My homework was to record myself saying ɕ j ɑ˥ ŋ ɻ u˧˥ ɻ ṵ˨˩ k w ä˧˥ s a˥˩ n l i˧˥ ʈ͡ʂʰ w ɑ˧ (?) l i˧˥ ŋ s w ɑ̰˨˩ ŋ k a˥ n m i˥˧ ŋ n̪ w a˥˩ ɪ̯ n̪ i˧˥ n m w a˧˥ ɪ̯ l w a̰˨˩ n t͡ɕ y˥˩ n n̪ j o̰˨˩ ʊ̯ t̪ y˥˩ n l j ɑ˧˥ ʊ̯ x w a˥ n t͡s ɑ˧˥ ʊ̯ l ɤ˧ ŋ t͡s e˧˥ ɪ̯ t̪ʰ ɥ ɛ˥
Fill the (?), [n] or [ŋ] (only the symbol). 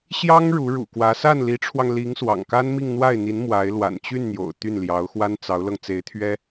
ŋ